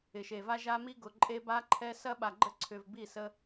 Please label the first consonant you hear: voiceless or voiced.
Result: voiceless